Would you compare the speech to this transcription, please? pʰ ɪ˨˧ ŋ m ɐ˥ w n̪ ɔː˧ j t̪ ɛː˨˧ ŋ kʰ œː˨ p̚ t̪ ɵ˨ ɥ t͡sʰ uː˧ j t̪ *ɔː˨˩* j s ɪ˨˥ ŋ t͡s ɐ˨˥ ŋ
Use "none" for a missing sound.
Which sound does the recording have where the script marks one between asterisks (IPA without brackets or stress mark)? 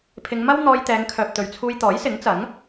ɔː˨˥